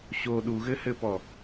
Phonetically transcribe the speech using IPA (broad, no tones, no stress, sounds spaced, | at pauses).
ɕ o ɗ u ɣ ɘ h ɘ p ɔ